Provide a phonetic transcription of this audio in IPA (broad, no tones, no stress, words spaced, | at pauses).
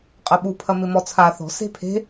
qʼɐɓupʰɐ mɪmɔt͡sʰa θɔ̤ se̤pʰe̤